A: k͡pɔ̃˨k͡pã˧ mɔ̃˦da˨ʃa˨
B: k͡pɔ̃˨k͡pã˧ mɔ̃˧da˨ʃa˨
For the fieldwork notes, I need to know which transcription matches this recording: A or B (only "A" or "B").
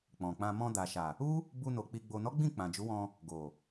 B